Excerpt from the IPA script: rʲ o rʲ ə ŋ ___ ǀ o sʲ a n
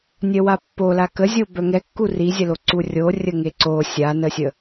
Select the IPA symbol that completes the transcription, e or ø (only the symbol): e